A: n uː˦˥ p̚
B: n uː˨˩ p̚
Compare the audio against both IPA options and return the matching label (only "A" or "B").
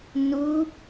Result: A